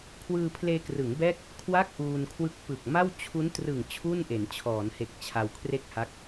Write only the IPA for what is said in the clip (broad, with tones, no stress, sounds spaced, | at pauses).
kʰ w ɯː˧ pʰ l eː˧ k r ɯ˩˦ ŋ b ɛː˥˩ k̚ | kʰ w a˥˩ k̚ ʔ uː˧ n kʰ w ɯ˦˥ k̚ p ɯ˨˩ k̚ m a˥˩ w t͡ɕʰ u˦˥ n t r ɯ˨˩ ŋ t͡ɕʰ u˥˩ n ʔ e˩˦ n t͡ɕʰ ɔː˩˦ n h e˨˩ k̚ t͡ɕʰ a˧ w kʰ r e˥˩ k̚ h a˦˥ k̚